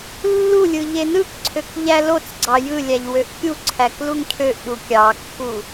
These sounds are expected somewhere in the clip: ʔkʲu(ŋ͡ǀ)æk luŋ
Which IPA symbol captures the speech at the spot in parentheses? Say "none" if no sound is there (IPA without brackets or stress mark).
ǀʰ